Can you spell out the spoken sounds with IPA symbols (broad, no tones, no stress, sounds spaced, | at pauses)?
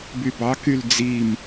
b y b ɑ k y l d͡z i m